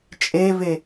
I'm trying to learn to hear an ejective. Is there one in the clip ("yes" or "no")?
yes